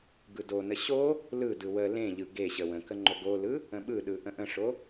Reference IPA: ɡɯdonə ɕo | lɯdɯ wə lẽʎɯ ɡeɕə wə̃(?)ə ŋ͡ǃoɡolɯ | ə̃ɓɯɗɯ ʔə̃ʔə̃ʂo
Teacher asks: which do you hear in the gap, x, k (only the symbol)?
k